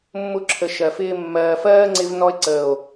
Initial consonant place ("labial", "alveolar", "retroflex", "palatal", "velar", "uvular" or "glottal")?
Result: labial